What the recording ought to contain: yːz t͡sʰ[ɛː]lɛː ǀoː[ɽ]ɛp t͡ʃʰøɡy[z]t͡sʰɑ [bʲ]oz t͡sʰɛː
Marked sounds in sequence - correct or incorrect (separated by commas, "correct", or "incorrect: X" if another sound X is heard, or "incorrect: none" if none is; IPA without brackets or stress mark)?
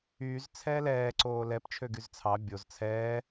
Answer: correct, incorrect: l, correct, correct